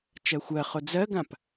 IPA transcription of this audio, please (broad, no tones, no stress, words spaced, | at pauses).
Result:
t͡ʃɜxʷɜχo d͡zɜɡãp